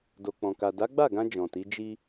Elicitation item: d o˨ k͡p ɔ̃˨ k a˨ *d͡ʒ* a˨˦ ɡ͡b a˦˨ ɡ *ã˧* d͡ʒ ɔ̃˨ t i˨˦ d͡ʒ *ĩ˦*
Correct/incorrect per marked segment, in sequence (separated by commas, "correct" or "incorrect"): incorrect, correct, incorrect